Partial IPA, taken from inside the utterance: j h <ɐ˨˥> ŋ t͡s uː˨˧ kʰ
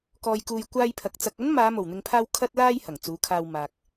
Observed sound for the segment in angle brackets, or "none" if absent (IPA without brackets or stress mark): ɐ˨˩